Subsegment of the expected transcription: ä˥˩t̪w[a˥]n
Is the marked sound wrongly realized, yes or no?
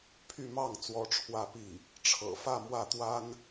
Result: no